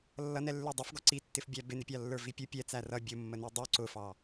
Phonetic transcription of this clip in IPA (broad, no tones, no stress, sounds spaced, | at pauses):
lː ʌ n ɛ lː ə˞ dˤ i f ɡ ɔ ǀ i tː ɪ f bʲ æ b ɪ n ɪ pʲ ɑ lː ə˞ v i pʲ ʊ pʲ ɛ t͡s æ r ʌ bʲ ʊ mː ə n i dˤ u ǀ ʊ f ɑ